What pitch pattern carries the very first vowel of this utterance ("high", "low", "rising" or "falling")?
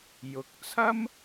rising